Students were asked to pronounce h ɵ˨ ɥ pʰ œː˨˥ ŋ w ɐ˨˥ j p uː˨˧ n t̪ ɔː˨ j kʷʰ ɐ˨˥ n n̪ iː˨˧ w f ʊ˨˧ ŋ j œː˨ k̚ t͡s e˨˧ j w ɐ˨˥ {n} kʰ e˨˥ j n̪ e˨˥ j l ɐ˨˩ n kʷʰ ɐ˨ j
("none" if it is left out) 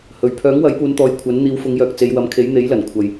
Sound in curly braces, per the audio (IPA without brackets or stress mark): m